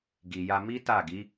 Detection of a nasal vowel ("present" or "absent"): absent